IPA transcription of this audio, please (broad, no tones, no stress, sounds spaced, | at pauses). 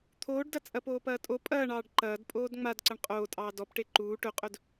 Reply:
t̪ʰ oː ɖ d ɐ t͡sʼ ɐ p oː p ɐː tʼ o pʼ ɐː ɳ ɑː ɖ ǃ ɐː d pʼ oː d ŋ͡m a d ǀ ɐ ɳ qʼ oː tʼ ɑː d ɔ p ʈ e ǃ uː ʈ ɵ qʼ ɵ d